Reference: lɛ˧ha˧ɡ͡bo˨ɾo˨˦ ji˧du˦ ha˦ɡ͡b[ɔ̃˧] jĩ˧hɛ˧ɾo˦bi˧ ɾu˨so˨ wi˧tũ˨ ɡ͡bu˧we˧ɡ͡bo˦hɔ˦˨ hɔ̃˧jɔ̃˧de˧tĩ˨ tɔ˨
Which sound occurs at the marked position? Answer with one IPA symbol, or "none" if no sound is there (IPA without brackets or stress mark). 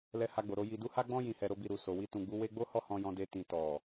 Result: ɔ̃˦